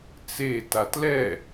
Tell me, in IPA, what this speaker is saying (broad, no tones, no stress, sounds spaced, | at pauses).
t͡s e t a t l ɛ